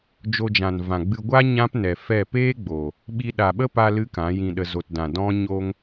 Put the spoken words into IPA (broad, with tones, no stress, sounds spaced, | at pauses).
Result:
d͡ʒ o˧ d͡ʒ ã˨ n v ã˨ ɡ͡b ɨ˧ ɡʷ a˦ ɲ ã˦ p n ɛ˨ f ɛ˦˨ p eː˦ ɡ͡b o˨ | ɓ i˧ ɗ a˨ ɓ ə˦ p a˧ l ɨ˦ k ã˨˦ j ĩ˧ ɗ ə˧ z o˨ t d ã˨ d ɔ̃˦ ɲ o˧ ŋ